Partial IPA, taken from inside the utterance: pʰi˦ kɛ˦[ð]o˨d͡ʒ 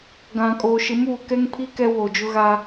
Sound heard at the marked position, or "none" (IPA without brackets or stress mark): w